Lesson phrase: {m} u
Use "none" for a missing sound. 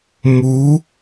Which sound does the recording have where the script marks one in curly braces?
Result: m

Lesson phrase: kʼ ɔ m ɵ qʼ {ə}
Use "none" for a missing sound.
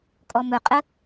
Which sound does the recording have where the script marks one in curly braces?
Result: ə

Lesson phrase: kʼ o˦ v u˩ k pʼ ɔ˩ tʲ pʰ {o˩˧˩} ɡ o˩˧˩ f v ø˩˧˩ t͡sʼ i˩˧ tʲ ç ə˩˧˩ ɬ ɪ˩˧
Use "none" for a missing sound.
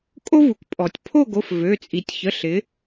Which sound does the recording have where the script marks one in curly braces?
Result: o˥˨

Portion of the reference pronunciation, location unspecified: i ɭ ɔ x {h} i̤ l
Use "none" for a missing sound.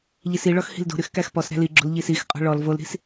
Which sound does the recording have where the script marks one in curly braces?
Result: h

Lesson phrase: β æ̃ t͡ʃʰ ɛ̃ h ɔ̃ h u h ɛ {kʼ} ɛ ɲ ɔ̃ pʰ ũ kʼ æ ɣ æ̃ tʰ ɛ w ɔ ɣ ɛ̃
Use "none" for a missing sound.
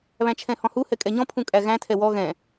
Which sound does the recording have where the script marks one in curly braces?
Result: kʼ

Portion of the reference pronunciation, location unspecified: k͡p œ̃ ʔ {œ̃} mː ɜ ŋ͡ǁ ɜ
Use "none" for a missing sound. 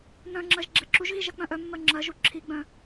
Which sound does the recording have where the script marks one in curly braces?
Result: œ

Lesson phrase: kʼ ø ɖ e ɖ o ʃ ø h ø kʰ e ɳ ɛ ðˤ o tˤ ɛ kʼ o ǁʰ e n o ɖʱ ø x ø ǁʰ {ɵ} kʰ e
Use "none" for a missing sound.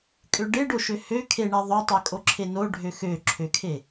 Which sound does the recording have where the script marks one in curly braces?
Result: ø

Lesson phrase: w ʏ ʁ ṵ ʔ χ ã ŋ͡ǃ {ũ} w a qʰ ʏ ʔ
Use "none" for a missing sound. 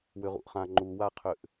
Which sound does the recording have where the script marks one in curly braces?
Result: u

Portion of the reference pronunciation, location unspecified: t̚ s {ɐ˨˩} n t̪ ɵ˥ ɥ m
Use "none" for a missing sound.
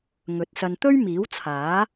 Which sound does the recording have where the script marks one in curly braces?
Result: ɐ˧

